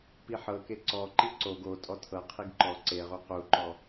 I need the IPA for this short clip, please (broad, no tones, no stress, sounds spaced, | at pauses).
p i ħ ɤ k e ǀ ɔ ǃ i ǀ o ɡ o tʼ ɔ tʰ ɤ qʰ i ɡ ǃ ɔ ǀ e ʁ u q u ǃ ɔ